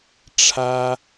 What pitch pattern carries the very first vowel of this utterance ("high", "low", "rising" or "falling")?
high